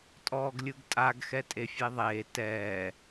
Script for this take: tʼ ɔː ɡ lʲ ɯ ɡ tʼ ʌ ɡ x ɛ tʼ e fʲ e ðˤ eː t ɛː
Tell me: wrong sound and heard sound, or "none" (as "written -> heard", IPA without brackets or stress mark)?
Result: ʌ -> a